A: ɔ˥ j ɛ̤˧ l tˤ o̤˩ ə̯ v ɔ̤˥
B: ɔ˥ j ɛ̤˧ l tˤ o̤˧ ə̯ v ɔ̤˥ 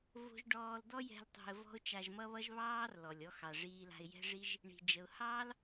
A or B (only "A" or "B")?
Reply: B